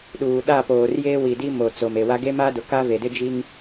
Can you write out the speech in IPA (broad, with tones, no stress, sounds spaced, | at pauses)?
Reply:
ɗ uː˨ ɗ a˦˨ p oː˨ r j eː˦ w i˨ d i˦ m o˨ t͡s o˨ m e˨ w a˦ ɡ e˦ m aː˦ d ʊ˨ k aː˦ v e˨ d ɪ˦ d͡ʒ i˦ ŋ